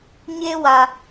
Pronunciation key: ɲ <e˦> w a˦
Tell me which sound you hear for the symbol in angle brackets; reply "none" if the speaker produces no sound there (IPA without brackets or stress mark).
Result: e˦